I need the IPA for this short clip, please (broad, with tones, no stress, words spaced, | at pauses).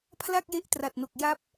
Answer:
pʰla˥˩k̚je˦˥ʔtra˨˩t̚no˨˩k̚ ja˦˥p̚